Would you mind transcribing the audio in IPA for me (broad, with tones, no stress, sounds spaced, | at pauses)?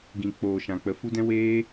ɡ ĩ˨ k͡p oː˨ ʃ ã˨ k͡p ə˨ f u˦ d ɛ̃˦ w eː˦